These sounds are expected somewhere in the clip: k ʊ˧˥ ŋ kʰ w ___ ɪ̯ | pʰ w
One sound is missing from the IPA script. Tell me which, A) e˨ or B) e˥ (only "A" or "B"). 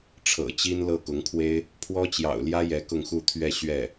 B